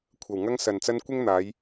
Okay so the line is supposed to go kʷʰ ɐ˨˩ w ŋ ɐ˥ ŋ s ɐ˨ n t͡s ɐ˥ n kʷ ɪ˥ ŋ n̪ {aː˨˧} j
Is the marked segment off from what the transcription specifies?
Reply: no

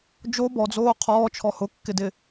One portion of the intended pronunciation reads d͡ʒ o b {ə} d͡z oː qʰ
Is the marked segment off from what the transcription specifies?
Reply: yes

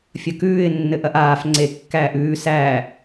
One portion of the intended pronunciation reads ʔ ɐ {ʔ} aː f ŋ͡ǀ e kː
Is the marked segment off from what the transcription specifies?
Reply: no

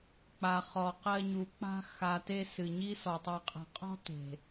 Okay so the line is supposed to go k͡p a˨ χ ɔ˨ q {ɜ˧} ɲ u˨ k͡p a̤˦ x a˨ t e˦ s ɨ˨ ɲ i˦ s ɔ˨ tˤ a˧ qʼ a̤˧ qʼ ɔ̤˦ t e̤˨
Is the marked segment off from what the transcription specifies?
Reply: no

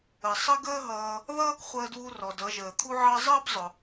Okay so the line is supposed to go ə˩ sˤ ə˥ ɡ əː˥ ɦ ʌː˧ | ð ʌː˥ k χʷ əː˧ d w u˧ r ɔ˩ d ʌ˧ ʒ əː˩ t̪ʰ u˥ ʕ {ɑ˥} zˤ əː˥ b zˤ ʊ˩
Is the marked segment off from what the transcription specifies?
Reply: no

